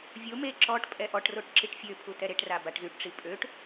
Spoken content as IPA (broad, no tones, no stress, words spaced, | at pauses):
vʲo me ǁɔʈ pʼɛʔɔʈroʈ ǁiʈfʲøpʰu tɛɾeʈra baʈzyʈʈ͡ʂi pʼøʈ